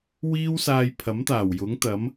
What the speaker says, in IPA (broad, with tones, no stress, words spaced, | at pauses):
wiː˥wsaː˧jpʰɐ˨˥mt̪aː˨˩w jʊ˨˥ŋt̪ɐ˨˥m